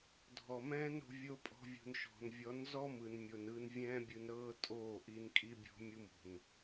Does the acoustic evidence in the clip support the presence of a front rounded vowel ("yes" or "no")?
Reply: no